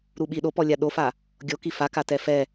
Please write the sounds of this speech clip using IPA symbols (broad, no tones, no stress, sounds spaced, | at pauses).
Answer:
ɾ u ɓ i ɗ o p ɔ lʲ a ɗ o f a | ɡʲ o k i f a k a t ɛ f ɛ